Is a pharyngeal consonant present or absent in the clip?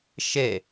absent